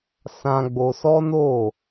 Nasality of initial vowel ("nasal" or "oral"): nasal